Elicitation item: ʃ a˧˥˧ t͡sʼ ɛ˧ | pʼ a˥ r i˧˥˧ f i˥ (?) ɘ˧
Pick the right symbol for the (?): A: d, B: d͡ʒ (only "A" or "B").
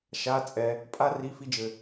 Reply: B